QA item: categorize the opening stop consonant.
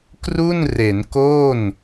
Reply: plain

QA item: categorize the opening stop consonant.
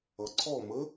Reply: click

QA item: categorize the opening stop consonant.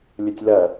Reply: plain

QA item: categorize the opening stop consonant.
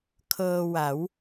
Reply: aspirated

